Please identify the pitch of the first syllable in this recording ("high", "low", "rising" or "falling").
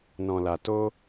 low